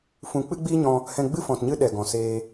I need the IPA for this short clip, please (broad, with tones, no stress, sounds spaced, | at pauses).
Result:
f ũ˧ k͡p ɨ˦ ɡ͡b iː˦ ɲ ɔ̃˧ | h ɛ̃˧ ɡ͡b ɨ˦ f ɔ̃˧ t ɲ ɨ˦ ɗ ɛ˨ ɡ ɔ̃˨ s eː˧